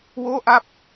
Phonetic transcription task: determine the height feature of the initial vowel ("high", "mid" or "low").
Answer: mid